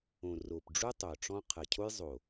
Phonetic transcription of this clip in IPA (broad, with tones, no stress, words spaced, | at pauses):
õ˨ ro˨pɖ͡ʐu˦ tˤo˨ʈ͡ʂɔ̃˦ qʰɜ˨cʰo˦j zˤo˨